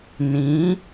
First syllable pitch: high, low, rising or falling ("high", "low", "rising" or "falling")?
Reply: rising